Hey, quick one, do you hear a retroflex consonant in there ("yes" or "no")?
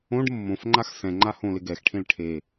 yes